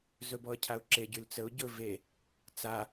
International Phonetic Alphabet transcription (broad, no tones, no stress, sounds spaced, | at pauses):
z ɵ b ɔ ə̯ cʰ a ʊ̯ ǁ e ɟ y l t͡s ə ʊ̯ ɟ ɵ v e | t͡s a